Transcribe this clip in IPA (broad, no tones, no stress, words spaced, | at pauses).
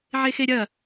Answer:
ʕexeɾʲɐ